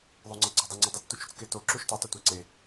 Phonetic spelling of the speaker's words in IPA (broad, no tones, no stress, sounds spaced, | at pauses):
ðˤ o ŋ͡ǀ ʌ ɡ͡ǀ ʌ dˤ o ŋ͡ǀ ɯ dˤ u t͡s t u t͡ʃ u t͡s k e t o ǁ u ʃ t e tˤ ɛ tʷ ɛ ǀ e